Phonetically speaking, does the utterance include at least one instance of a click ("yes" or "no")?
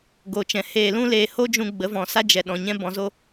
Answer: no